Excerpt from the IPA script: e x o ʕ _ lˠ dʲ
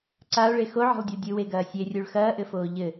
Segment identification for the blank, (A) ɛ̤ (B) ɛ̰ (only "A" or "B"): A